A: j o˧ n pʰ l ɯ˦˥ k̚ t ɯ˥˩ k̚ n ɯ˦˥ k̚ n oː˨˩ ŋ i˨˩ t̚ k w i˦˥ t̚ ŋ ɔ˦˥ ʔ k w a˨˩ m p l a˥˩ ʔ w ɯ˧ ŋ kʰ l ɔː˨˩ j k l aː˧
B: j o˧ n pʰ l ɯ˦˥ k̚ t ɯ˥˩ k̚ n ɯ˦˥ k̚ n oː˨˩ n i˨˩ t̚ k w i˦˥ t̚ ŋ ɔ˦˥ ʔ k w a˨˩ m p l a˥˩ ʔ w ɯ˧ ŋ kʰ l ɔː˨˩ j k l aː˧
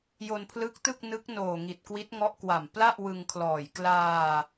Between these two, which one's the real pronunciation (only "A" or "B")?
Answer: A